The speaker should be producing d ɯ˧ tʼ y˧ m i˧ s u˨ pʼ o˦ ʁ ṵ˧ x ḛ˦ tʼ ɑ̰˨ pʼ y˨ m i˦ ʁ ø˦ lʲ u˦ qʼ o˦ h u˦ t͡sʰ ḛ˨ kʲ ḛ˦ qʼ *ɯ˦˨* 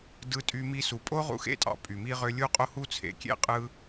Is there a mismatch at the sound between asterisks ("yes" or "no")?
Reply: yes